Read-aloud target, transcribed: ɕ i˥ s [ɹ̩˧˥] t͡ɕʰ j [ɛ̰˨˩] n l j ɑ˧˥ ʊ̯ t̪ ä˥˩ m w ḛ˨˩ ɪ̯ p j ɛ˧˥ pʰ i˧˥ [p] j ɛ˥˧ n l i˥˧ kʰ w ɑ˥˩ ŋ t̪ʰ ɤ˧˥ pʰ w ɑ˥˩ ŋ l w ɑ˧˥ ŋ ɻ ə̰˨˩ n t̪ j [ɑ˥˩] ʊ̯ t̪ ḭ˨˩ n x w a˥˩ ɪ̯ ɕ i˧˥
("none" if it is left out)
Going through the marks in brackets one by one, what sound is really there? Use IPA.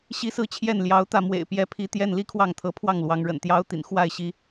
ɹ̩˥˧, ɛ˥˩, t̪, ɑ˥

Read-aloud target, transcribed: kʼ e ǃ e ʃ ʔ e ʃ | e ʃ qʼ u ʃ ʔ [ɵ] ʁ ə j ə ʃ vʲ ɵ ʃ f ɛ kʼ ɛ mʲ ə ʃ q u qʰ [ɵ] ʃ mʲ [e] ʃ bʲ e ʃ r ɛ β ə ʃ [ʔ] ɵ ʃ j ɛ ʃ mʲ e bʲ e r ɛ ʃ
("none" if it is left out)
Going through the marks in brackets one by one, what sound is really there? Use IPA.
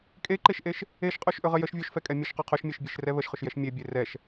ɵ, ɵ, e, χ

